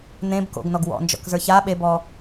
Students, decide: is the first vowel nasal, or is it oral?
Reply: nasal